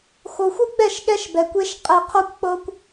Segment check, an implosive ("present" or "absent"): present